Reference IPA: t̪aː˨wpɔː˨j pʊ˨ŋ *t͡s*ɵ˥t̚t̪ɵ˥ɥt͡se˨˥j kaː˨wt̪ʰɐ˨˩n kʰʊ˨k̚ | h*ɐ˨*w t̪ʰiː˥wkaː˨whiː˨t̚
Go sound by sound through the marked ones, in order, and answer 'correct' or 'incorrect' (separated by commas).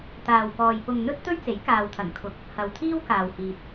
incorrect, correct